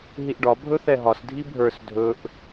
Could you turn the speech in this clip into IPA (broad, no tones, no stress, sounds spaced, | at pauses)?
ɦ i ʔ ɖ ɒ bʱ ɵ θ ɛ ɦ ɒ s dʱ i bʱ ə˞ s dʱ ɵ ʔ